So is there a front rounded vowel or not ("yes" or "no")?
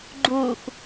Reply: no